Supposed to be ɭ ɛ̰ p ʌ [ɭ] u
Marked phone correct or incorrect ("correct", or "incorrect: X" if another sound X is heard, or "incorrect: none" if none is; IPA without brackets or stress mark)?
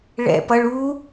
correct